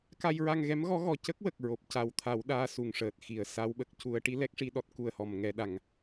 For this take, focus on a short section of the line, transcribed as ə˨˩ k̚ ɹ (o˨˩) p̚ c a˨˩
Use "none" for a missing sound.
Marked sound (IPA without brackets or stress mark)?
o˨˩